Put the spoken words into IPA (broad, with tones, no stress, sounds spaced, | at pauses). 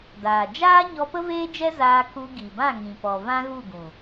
d aː˨ d͡ʒ aː˦ ɲ ɔ˧ p ə˦ v eː˦ d͡ʒ ɛ˦ z aː˧ k u˧ ɡ i˨ b ã˦˨ ŋ ĩ˨ p ɔ˨ v ã˦ ɣ u˦˨ ɡ ũ˨